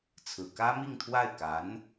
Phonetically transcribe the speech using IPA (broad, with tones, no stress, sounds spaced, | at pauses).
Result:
t͡sʰ ɹ̩˨˩ k ä˥ m i˥˧ ŋ t̪ʰ w a˥˩ ɪ̯ k a˧˥ n